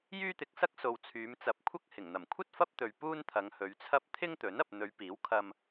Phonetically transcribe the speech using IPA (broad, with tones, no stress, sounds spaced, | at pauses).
j yː˥ t̪ ɪ˨˥ k̚ s ɐ˥ k̚ s o˨ w t͡sʰ yː˨˧ m t͡s ɐ˨ p̚ kʷʰ ɐ˥ k̚ h ɪ˨˩ ŋ n̪ ɐ˨˩ m kʷʰ ɐ˥ t̚ f ɐ˥ p̚ t̪ ɵ˨ ɥ p uː˥ n t̪ʰ ɐ˨˧ ŋ h ɵ˨˧ ɥ t͡sʰ ɐ˥ p̚ t̪ʰ ɪ˥ ŋ t̪ ɵ˨˥ n ɐ˨ p̚ n̪ ɵ˨˧ ɥ p iː˨˥ w kʰ ɐ˧ m